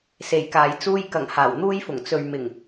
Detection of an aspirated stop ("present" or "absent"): absent